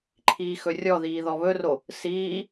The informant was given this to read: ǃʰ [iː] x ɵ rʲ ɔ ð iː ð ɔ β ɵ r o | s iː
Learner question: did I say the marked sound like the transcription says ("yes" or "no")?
yes